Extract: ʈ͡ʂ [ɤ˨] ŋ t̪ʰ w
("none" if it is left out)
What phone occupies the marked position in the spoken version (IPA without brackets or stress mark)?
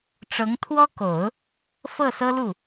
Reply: ɤ˧˥